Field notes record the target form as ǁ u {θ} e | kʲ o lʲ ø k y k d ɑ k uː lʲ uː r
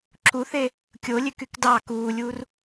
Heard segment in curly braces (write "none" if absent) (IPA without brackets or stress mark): θ